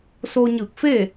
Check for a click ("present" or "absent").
absent